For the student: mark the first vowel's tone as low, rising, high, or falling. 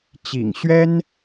low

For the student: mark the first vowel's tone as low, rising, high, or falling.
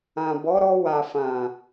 low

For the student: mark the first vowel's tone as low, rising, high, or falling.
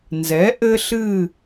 rising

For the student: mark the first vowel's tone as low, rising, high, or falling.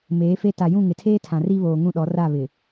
rising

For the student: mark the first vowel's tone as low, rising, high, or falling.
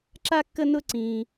high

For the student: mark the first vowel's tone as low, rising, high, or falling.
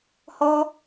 high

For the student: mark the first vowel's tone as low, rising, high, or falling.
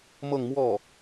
falling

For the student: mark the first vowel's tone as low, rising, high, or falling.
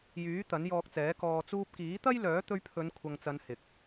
rising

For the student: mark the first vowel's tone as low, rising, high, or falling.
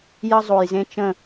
high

